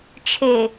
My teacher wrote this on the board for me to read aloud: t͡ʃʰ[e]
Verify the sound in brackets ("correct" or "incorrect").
correct